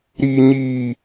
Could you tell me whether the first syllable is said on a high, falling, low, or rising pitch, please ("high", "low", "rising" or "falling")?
high